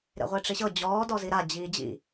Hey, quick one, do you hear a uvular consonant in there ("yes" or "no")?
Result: yes